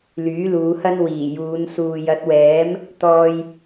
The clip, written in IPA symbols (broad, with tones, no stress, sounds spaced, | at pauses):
l yː˨˥ l uː˨˧ h ɐ˥ n w iː˨˩ j uː˨˧ n s uː˨ j ɐ˨˥ t̚ w ɛː˨˥ m | t̪ ɔː˧ j